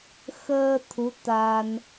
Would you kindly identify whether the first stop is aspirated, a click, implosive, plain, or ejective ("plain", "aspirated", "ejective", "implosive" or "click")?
aspirated